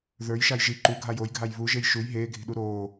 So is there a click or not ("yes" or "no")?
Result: yes